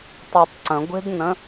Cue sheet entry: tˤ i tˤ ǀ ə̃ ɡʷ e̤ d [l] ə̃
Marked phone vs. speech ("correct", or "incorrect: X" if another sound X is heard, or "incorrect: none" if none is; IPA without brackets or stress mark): incorrect: n